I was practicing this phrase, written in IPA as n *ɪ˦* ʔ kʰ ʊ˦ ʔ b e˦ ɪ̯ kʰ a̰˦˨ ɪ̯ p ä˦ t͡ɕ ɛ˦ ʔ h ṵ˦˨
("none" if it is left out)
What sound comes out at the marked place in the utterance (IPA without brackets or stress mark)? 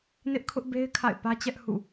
ɪ˦